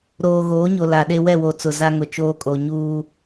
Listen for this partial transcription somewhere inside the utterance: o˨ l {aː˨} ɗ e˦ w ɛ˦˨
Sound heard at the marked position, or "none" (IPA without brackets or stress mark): a˨